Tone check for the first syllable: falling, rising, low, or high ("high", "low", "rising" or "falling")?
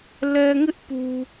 low